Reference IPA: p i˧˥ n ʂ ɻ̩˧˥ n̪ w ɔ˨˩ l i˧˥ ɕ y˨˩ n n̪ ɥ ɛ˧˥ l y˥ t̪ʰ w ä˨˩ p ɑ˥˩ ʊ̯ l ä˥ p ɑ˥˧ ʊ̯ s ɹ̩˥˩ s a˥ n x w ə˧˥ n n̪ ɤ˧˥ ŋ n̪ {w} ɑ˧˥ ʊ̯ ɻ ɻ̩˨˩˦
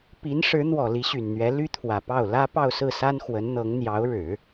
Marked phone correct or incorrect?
incorrect: j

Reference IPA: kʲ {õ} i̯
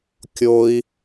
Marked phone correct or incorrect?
incorrect: o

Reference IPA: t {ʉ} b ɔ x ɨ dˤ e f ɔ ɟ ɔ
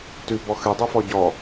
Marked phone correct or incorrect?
correct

